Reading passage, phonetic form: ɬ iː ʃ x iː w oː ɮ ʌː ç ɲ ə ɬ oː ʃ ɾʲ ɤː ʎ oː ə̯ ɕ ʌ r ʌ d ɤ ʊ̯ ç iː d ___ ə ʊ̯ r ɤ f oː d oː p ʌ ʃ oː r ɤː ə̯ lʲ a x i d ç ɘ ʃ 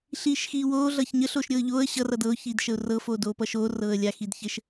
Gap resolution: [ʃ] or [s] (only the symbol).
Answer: ʃ